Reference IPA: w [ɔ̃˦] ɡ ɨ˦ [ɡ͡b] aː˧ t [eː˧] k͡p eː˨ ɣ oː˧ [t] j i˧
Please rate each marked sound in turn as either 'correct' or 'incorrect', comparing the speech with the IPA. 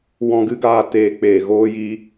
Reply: incorrect, incorrect, correct, incorrect

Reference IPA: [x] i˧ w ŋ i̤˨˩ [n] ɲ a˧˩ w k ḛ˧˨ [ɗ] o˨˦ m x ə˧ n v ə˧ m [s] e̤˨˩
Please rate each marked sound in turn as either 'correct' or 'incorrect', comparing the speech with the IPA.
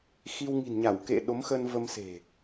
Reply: correct, correct, correct, correct

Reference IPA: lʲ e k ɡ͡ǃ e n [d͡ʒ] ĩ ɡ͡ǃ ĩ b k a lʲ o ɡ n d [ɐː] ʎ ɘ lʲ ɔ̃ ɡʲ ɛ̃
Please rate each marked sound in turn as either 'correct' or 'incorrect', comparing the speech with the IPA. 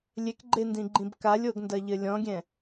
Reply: incorrect, incorrect

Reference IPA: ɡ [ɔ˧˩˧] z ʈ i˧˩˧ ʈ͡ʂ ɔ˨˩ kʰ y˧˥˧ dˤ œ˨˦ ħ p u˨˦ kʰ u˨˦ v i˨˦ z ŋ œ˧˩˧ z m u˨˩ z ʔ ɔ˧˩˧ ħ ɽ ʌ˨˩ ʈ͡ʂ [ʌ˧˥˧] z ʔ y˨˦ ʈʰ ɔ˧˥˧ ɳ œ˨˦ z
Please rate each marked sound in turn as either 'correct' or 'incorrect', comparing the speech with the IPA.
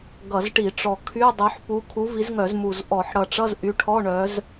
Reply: incorrect, correct

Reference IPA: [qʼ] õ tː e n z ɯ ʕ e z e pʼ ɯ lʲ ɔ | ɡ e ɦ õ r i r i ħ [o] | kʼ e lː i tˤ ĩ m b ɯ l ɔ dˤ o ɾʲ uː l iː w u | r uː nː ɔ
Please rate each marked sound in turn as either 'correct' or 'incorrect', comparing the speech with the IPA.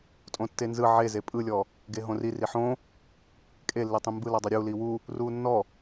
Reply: incorrect, incorrect

